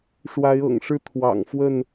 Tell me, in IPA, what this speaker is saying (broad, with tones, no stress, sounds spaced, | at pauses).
ʂ w a˨˦ ɪ̯ ɤ̰˨˩ ŋ ʂ ɻ̩˥˨ t̪ʰ w ɑ̰˨˩ ŋ f w ə˥˨ n